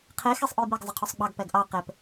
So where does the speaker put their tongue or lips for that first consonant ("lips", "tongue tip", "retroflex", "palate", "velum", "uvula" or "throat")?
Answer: uvula